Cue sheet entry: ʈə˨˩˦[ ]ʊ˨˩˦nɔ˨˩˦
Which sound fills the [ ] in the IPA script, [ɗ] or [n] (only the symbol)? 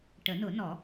n